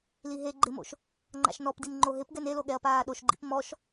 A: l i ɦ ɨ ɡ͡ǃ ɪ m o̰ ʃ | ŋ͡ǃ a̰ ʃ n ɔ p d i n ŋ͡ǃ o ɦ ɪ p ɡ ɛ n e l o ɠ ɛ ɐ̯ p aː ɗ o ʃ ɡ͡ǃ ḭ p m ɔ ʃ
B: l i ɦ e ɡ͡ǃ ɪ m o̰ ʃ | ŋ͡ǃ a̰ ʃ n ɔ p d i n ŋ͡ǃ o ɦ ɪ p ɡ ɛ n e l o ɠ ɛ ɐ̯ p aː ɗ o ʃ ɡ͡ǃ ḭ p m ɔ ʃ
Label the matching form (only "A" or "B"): B